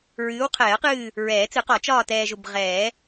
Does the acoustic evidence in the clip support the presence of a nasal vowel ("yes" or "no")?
no